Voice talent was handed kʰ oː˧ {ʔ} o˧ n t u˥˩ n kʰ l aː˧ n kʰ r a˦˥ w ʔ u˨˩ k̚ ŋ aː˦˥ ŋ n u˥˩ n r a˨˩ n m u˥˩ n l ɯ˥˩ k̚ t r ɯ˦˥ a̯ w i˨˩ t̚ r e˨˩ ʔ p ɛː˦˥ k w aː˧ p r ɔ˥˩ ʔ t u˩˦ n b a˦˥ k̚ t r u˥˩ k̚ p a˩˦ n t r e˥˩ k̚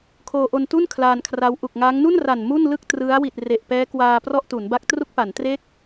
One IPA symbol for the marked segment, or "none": ʔ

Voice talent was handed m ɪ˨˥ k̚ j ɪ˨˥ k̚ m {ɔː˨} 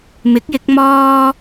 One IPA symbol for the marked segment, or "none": ɔː˥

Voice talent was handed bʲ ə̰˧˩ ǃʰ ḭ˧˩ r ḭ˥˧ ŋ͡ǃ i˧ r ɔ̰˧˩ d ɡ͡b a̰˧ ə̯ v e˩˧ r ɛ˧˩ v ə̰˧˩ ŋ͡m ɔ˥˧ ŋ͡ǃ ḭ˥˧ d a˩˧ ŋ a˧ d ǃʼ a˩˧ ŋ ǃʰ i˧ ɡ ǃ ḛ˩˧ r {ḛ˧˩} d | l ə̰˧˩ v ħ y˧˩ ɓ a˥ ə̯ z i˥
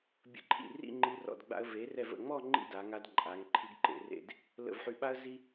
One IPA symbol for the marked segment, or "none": ḛ˥˧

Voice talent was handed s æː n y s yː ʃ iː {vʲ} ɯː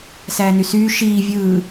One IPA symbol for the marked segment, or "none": vʲ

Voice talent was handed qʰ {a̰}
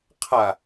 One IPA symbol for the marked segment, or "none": a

